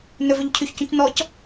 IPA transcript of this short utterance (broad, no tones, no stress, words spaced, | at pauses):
nɵvøʎ cʰyçcũc nɔc